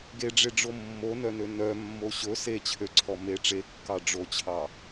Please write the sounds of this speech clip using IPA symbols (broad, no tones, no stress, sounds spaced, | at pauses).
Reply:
ɡ e ɖ͡ʐ e ɖ͡ʐ o mː o n œ n ø n œ mː o ɕ ɵ s e t͡ɕʰ ø ǀʰ ɔ m e ʈ͡ʂ e kː ɑ ɖ͡ʐ o t͡ɕʰ ɑ